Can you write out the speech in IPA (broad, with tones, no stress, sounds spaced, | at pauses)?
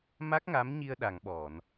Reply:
m a˦˥ k̚ ŋ a˧˥ m ɲ i˧ ə̯ ɗ a˨˩˨ ŋ ɓ ɔ˨˩˨ n